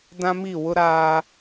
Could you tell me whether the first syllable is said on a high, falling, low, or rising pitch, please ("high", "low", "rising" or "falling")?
high